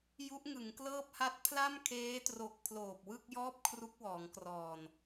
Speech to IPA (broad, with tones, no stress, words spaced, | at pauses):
ju˦˥ʔŋɯ˩˦ŋklɤː˥˩p̚ha˥˩t̚ pʰla˥˩mkʰeː˦˥tro˨˩k̚ pʰloː˨˩p̚wɯ˥˩k̚jɔː˥˩p̚ kʰru˦˥k̚wɔː˩˦ŋkrɔː˨˩n